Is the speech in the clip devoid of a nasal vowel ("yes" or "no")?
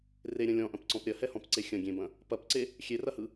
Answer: no